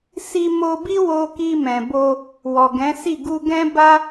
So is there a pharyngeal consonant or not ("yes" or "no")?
no